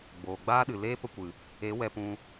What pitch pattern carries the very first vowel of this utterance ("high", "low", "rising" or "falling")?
low